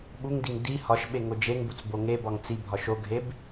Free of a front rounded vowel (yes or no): yes